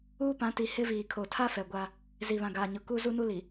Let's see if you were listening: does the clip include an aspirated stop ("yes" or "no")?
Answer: yes